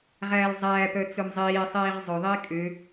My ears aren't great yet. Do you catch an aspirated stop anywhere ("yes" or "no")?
no